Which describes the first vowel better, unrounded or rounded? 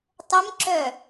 unrounded